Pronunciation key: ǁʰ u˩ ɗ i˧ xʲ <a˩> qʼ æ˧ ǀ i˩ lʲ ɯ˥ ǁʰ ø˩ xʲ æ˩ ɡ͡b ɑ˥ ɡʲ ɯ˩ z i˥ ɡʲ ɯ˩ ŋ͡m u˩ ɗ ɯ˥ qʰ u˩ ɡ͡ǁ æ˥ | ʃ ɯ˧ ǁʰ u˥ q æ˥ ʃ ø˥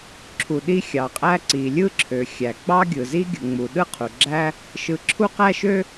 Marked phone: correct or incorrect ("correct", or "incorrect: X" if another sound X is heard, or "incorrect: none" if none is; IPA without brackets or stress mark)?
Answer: incorrect: ɑ˩